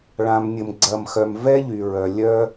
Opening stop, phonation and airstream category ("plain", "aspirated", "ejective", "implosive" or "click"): click